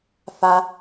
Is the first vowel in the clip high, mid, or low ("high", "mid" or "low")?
low